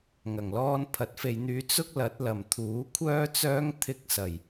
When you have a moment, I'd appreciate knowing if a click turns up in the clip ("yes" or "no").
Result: no